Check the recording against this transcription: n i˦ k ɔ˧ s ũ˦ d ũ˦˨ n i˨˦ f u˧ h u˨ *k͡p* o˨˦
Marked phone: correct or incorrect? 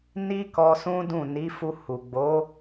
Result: incorrect